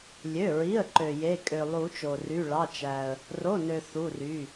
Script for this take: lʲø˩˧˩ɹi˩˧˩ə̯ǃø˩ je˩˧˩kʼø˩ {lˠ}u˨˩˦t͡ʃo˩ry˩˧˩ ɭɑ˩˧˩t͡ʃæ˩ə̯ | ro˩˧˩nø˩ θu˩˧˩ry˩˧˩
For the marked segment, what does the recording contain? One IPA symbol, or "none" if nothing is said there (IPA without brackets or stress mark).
lˠ